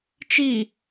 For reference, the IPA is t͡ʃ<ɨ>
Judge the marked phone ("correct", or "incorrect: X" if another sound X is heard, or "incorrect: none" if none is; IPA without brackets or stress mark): incorrect: i